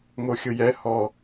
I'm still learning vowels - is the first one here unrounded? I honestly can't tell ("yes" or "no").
no